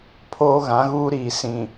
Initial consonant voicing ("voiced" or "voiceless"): voiceless